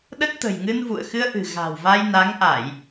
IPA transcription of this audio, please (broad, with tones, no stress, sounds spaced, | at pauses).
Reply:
ɗ ə˦˥ t̚ t̪ ə̤˨˩ j ŋ ɨ˧ n v ṵ˧˨ ə̯ x ɨ˧ ə̯ ʔ ɨ̤˨˩ ɣ a̤˨˩ w v a˧ j n a˨˦ ŋ ʔ a˧˩˨ j